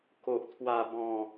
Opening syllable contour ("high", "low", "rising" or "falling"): low